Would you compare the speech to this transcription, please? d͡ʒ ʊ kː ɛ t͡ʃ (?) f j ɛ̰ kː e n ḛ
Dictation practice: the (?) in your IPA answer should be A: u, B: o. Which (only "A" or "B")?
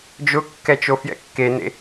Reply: B